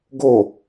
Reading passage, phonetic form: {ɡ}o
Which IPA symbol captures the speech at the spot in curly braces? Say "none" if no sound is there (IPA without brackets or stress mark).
ɡ